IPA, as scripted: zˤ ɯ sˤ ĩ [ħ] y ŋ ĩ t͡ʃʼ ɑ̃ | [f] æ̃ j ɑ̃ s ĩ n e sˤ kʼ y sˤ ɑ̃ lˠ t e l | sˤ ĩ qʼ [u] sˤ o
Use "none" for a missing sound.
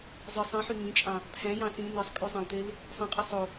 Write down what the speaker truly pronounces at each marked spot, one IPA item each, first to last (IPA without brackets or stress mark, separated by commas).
ħ, pʰ, ɯ